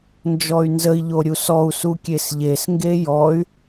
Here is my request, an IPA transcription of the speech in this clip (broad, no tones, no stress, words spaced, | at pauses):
nd͡ʒɔy̯nzəi̯ ʎoɾʲusɔu̯ sukʲesʎes ŋɡejɔy̯